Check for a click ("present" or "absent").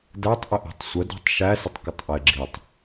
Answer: present